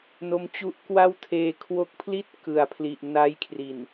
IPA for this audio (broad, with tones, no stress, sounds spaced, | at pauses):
n o˦˥ m t͡ɕ u˦˥ ʔ k w a˥˩ w tʰ eː˧ kʰ w o˦˥ k̚ pʰ l i˥˩ t̚ k ɯ˨˩ a̯ pʰ l i˨˩ ʔ n a˦˥ j kʰ r i˨˩ n